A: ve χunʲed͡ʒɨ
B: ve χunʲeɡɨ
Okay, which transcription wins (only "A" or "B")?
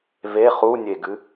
B